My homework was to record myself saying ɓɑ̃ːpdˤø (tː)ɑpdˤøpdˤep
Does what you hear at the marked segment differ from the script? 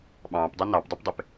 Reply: yes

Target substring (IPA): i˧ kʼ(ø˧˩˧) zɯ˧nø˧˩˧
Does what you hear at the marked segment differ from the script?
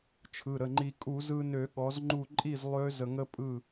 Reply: yes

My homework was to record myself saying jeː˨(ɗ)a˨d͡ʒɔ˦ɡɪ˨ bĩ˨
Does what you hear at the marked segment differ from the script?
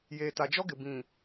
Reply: yes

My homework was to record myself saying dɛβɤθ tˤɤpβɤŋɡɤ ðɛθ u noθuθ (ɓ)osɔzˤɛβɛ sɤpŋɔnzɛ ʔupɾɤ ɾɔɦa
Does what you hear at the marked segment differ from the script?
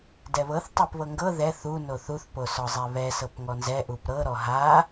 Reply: yes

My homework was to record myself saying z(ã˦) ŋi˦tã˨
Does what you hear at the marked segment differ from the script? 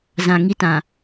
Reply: yes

